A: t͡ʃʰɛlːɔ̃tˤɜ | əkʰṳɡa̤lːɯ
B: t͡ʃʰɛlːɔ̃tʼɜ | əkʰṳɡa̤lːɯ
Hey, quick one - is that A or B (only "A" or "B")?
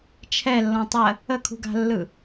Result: A